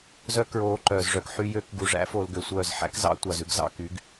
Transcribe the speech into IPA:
zœ˦ kɹoː˧ǃœː˨z ʐœ˧kħy˦jø˦k ɡu˨ʐæ̰˦ fo˧lɡø˨sʷœː˦˨z ħæ̰˦k zɑ̰˦ tʷɑ˨zʉ˦ɡ zɑ̰˧ky˨˦ɡ

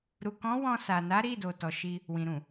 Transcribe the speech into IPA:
ɾu˨kɔ̃˨˦ wɔ̃˧sa˨na˨˦ɾi˦˨ do˨tɔ˨ʃi˧ | wĩ˨ɾũ˨

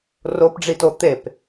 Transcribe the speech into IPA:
ropɖ͡ʐito t̪ep

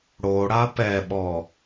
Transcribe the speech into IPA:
ɽoɽa pɛɓɔ

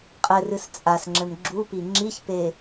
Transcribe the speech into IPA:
qʼɘrɨs t͡sʼasŋ͡ǁɘm ɡ͡ǁupi ŋ͡ǁiçpe

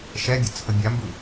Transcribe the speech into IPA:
ʃɛbʲə t͡sʰəbʲambɯ

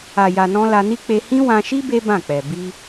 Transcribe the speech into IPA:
a˨ja˨nɔ̃˧ la˧ni˦ k͡pe˧hĩ˦ wã˧ʃi˦ be˦bã˦˨k͡pɛ˨ bi˧

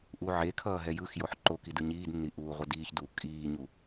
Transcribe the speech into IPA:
ʔuʕekʰʌː ɦɛjɯxjoħ ǃokid ɯɲiːdnːi ʔuːʁʷʌdiːçduː kʼiːɲu

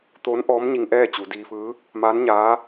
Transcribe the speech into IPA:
t̪oː˧˥nʔɔː˧˥mɲi˧ŋ ʔɛː˥˨t͡ɕu˩˧diː˧fɯː˧˥ | maː˧˥nɲaː˧˥

